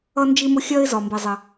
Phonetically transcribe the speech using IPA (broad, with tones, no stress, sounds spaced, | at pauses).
ʌ˧ n d͡ʒ i˧ m ʊ˧ xʲ ɜ˧ ɪ̯ z ɒ˩ m b i˩ zˤ ɪ˩